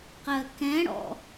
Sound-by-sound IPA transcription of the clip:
q ɜ k ɛ̃ ɽ ɔ̰

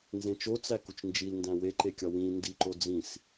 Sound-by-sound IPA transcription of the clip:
n z ẽ t͡ʃ o t͡s æ k u t͡ʃ n d͡ʒ i l n d æ̃ w e ǃ e kʲ ɒ w ĩ n d i ǃ o d͡z ĩ s

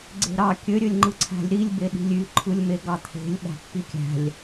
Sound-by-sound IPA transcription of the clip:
ɡ͡ǀ e̤ ɾ ɑ kʲ ø ɾʲ ø lʲ ŋ͡ǃ ɯ ǀʰ æ̤ lʲ ɾ i lʲ b e ɗ i̤ lʲ y ǃʰ ɯ lʲ m e ɡ ɑ t̪ʰ e̤ lʲ ɓ æ̤ pː i kʲ æ̤ lʲ

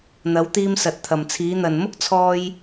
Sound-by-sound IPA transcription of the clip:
n̪ ɐ˨˧ w t̪ iː˧ m s ɐ˨ t̚ t̪ʰ ɐ˨ m t͡sʰ iː˨˧ n̪ ɐ˨ n m ʊ˥ k̚ t͡sʰ ɔː˧ j

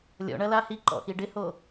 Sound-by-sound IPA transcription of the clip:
lʲ ɔ̰ ɳ ɐ l a h i ǃ ɔ̰ x i ɖ ɪ h o

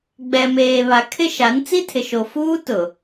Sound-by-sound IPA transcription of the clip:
ɡ͡b ɛ˨ m eː˨ β a˨˦ kʰ ɪ˦ ʃ a˨˦ n t͡s i˦ tʰ ɪ˨ ʃ o˨ f uː˦ t ʊ˨

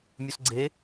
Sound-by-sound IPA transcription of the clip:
mʲ u s ɡ͡ǀ e

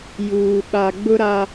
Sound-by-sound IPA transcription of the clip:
j uː˨ ɓ a˨ ɡ͡b ʊ˦ ɾ a˦

